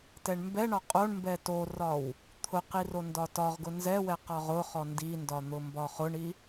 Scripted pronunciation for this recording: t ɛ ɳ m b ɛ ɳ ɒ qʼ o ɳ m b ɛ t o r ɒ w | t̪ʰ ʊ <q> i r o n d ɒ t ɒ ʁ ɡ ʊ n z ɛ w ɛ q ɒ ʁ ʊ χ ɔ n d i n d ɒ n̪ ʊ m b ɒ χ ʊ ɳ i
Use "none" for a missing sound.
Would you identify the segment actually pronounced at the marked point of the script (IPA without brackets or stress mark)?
q